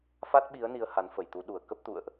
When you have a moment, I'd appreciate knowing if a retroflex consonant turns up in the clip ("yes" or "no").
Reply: no